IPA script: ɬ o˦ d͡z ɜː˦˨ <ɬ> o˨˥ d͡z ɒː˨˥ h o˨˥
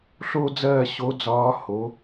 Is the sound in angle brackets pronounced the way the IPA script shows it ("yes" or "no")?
no